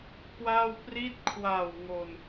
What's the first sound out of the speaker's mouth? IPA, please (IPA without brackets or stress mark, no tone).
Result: k